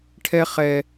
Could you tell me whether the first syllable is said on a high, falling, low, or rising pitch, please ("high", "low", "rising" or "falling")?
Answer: high